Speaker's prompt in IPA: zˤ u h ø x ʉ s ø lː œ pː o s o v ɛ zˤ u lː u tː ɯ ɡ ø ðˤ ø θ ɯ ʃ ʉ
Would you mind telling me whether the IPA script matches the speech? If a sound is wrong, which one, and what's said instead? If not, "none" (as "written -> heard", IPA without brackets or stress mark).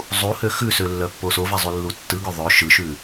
θ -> ʃ